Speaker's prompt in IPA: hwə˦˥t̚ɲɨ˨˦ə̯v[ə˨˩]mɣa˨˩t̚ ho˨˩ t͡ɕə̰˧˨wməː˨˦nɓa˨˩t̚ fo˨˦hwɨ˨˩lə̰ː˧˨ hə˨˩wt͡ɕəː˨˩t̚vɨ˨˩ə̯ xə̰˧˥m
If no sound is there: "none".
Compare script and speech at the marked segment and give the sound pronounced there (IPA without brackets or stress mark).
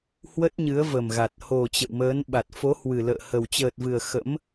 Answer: ə˨˩